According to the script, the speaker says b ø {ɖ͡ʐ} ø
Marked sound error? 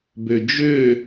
yes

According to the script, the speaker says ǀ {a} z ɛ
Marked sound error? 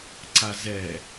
no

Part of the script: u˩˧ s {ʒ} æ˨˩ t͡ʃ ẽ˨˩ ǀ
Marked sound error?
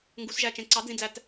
no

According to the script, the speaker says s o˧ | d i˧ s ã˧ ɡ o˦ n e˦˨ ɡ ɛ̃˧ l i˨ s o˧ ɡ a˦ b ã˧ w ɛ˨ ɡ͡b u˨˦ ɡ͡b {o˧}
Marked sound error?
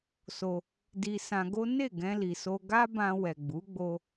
no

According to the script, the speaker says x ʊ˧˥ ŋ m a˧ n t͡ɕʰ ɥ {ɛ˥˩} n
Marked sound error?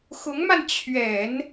yes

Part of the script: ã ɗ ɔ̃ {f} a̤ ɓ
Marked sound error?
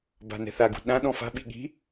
no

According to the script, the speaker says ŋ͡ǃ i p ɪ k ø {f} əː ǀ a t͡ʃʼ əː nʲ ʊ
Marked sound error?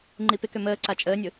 yes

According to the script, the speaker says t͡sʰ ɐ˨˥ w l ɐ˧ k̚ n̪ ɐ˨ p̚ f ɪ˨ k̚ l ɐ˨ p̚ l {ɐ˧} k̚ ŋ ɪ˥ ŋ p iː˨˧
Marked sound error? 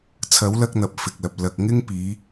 yes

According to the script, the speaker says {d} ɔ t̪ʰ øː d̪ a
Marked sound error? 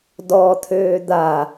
no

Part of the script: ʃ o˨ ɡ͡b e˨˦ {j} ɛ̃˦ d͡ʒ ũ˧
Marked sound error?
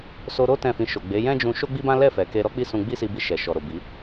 no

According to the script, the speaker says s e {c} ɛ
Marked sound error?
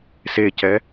no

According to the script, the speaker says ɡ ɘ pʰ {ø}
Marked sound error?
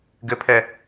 yes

